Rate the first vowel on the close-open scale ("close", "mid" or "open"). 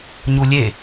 close